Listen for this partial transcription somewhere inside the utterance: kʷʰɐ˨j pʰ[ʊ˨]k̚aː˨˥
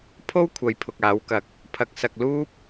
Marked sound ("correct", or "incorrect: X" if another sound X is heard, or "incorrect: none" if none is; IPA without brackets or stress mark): correct